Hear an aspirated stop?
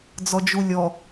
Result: no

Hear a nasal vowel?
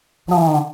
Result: yes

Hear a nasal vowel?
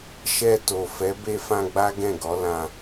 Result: yes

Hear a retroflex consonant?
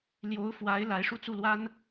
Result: yes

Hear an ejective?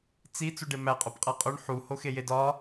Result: yes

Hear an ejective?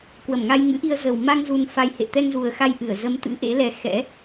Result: no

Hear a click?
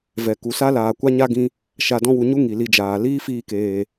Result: no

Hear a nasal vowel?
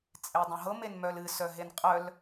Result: yes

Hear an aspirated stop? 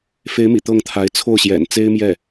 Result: yes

